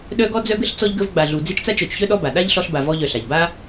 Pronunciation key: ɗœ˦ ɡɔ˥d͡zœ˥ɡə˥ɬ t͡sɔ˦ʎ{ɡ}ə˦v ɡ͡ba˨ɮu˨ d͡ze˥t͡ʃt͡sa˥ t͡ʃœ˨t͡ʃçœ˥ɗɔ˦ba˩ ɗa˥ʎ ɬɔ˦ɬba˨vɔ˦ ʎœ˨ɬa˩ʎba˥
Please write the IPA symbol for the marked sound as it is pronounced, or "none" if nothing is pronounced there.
ɡ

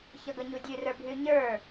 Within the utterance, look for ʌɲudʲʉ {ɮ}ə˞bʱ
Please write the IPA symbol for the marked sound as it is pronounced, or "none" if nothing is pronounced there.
r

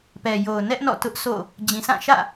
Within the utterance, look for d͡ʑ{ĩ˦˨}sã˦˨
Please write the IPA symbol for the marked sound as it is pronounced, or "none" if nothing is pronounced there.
ĩ˨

